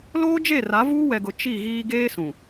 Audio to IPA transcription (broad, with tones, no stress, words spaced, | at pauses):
loː˦d͡ʒe˦˨ ra˨˦vuː˦wɛ˨ɡʊ˨ t͡ʃi˦˨ɣiː˦ ɡeː˦ sũ˨